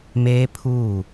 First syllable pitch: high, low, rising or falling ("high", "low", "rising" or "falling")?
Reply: high